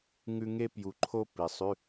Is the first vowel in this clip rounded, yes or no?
yes